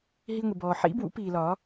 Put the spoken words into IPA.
ɦi˧ŋʷi˩bɔː˩ ħḭ˨˥bwṵ˧piː˩ lɒ˨˩˦

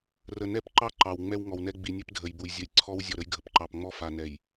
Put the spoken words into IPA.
rə˨ nɛ˦pǃɑ˦ ǃɑ˨wŋ͡mɛ˦w ŋɔ˨wnɛ˦ ɡ͡bi˨nʲɛ˦pdʱə˨jbu˨j zʲə˨j ǀʰɔ˦wzʲɔ˨ ɾə˦jɡʱə˨p ǃɑ˨pŋ͡mɔ˦fa˨nɛ˨j

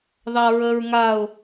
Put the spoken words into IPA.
ðɑɹəɹŋaʊ̯

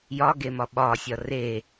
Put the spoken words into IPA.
jɒɡemɒ ɓɒsʲɒ re

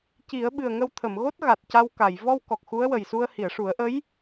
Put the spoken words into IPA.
ci˨˩˦ə̯ ɓɨ˨˩ə̯ŋə˧w t̪ʰə˨˩˨mɣo˦˥t̚ɣa˨˩t̚ ca˧wka˨˩˨j vɔ˧w kɔ˨˩k̚xu˧˥ə̯wə˨˩jsu˧ə̯ hi˨˩˨ə̯ʂu˨˩˦ə̯ʔə˧˥j

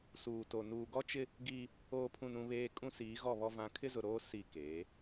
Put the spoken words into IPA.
suː˨to˨ nuː˨ɡɔ˦t͡ʃɪ˦ | ɡiː˦ | oː˨pʰũ˨n ũ˦βeː˦ kʼũ˦siː˨˦ɣɔ˦˨βɔ˦ vã˨˦kʰɪ˦zʊ˨ɾoː˦ si˦˨ keː˨˦

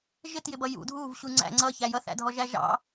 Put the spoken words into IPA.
ʒɪtjɪbʌ jṵ dʱuvɕu ŋ͡ǀæ̰ ŋ͡ǀʌçæ jʌθæ̰dʱɔʒæ ʒɑ̰

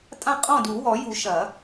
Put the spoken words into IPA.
tʼã˥˩qʼɔ̃˥˩du˨˩˦wɔ˨˩˦ ju˨˩˦ʃɐ˨˩˦

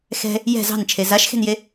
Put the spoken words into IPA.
xɛ̤ | jɛ̤ zɑ̤nt͡ʃʰe zaʃxe̤nje

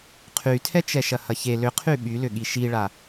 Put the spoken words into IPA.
qʰytʰɛt͡ʃɛʃɐ hɐçe lʏqʰy ɓylʏ ɠiʃiɭa

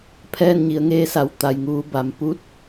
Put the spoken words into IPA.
pʰɛː˥˨nɲi˩˧ə̯ŋeː˧˥sa˩˧w t̪a˩jŋuː˩˧ ba˩mpu˧˥t̚

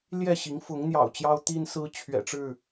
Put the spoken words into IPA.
ljɛ˥˨ɕi˨˦ŋ fʊ˨˦ŋn̪jɑ̰˨˩ʊ̯ t͡ɕjɑ˦ʊ̯t̪i˦nsɹ̩˦ t͡ɕʰɥɛ̰˨˩ʈ͡ʂɻ̩˥˨

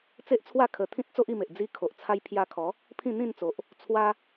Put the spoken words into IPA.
t͡se˦ʔt͡sʰwa˥˧ kʰə˧ t̪ʰĩ˦t̚ t͡so˦ʔi˧me˨ʔ d͡zi˧ kʰo˨ʔt͡sʰa˧j pʰja˧kʰɔ˨˦ | pʰĩ˥˧n̪ĩ˥˧nt͡so˨ʔ | t͡sʰwa˦

